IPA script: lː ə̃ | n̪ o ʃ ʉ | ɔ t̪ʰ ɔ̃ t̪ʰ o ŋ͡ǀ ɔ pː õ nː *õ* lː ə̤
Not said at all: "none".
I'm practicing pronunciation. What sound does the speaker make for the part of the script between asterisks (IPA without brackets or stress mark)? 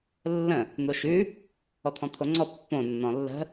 ɔ̃